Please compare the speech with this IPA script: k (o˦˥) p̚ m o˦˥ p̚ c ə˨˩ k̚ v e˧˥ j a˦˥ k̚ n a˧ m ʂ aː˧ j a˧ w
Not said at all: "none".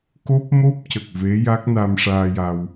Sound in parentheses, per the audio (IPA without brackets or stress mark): o˦˥